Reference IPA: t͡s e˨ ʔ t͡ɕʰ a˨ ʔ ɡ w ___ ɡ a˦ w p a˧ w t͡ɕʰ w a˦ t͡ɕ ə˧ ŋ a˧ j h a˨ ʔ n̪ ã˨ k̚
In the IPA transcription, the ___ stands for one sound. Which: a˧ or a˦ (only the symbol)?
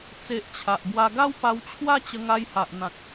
a˧